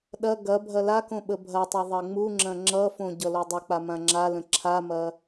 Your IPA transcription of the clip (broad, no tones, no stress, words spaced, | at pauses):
ɗɐ ɡɐ bʱɐlakõ ɓəbʱɐtˤʌ ðˤɐŋ͡muŋ͡ǁɐ̃ ŋ͡ǁʌfõ ɟʌlodˤək͡pa mãŋ͡ǁalə̃ ǁʰamɐ